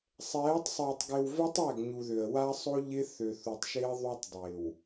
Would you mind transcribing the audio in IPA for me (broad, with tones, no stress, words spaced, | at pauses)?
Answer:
sˤɛː˨˦tˤsˤɪː˨tˤ ɡɪ˨wvɛ˦tˤ æ˦˨ɡɲu˨ðø˨ə̯ wa˦sˤo˦ ʎɪ˦ θø˨θu˨tˤʃɪː˦ ðˤu˦tˤ dˤɪː˨w